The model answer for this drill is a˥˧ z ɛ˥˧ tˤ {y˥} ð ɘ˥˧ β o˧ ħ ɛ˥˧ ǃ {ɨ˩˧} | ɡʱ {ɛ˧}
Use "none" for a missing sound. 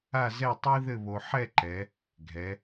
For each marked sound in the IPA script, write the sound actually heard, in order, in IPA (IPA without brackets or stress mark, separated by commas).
i˥, ɛ˩˧, ɛ˩˧